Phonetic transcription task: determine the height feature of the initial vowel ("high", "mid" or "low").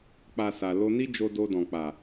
low